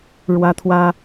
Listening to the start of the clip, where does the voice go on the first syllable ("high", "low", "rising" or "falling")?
high